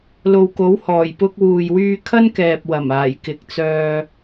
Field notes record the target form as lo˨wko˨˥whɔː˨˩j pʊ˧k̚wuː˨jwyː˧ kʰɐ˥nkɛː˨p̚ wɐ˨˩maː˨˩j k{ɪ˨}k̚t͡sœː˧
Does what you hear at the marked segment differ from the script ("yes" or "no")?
no